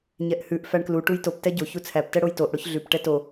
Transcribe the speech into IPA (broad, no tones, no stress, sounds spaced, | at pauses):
ɲ ɛ ʔ h ʉ ʔ f æ ɳ k l u ʈ u j t o p t ɛ ɟ o ç u t͡sʰ æ p t ɛ ɽ o j t o ʔ ɽ o ç ɮ ʉ p ʈ ɛ t o